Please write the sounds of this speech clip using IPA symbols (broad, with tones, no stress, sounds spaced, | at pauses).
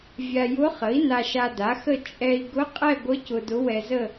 vʲ a˧ j ʊ˧˥ χ ə˩˥ i̯ n a˧ ʃ a˧ d a˩˥ x ə˥˧ t͡ʃʼ ɛ˧ i̯ ɡ ʊ˧˥ qʼ ɛ˥˧ ɡʷ ə˧˥ c ʊ˧ d ʊ˧˥ w ɛ˧ z ə˥˧